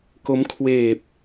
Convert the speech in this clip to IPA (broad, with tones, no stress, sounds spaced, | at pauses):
k o˦˥ m kʰ w eː˨˩ p̚